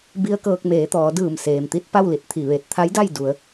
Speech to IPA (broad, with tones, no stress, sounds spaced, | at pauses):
b i˧ ə̯ k ɤː˧ k̚ m eː˩˧ t̪ ɔː˩˧ d ɯː˧˩ m s eː˩ m t̪ i˧ t̚ p a˥˨ w l i˧˩ t̚ t̪ʰ i˧˩ ʋ e˧ t̚ t̪ʰ a˧˥ j d a˥˨ j d u˩˧ ə̯